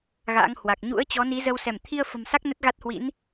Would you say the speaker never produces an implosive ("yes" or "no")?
yes